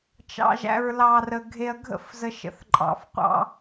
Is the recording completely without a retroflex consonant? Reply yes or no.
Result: yes